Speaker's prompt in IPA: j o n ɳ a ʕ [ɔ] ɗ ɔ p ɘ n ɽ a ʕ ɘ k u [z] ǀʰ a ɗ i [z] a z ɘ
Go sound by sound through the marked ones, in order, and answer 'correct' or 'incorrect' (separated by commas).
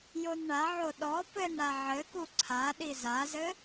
incorrect, incorrect, correct